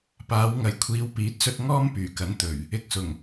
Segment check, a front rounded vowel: present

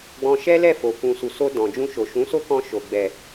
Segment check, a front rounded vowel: absent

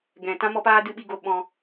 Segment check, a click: absent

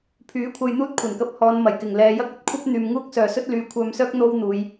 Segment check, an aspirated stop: present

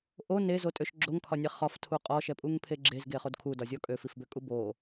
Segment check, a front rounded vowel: present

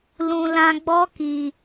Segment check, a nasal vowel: present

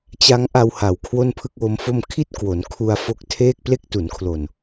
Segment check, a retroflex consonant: absent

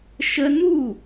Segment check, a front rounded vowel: absent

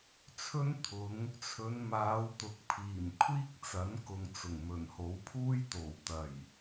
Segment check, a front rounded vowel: absent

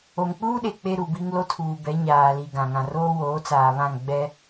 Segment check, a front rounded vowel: absent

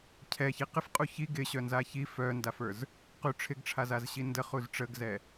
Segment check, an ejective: present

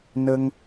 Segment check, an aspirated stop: absent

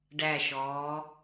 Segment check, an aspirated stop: absent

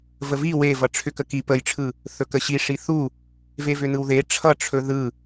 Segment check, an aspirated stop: present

